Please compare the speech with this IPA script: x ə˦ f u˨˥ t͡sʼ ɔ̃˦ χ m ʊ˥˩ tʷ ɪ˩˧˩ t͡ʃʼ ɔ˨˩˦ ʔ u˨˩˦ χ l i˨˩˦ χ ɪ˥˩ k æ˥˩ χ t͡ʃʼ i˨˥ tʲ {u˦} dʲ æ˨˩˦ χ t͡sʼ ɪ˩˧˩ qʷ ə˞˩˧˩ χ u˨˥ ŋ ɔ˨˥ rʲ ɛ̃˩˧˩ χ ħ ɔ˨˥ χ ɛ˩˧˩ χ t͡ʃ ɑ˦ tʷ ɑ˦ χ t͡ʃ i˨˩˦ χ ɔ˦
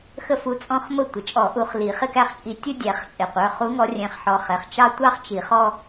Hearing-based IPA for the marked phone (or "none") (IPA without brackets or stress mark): u˦